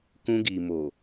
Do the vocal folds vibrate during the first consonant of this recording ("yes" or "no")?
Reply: no